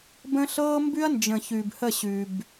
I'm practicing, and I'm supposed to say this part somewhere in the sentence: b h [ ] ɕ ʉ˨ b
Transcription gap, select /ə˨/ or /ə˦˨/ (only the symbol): ə˦˨